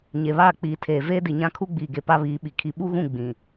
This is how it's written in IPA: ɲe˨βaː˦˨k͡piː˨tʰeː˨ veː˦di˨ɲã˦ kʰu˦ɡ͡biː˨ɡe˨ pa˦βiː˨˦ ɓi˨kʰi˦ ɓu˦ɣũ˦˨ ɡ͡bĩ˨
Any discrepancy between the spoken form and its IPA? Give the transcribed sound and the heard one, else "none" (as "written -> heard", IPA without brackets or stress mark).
none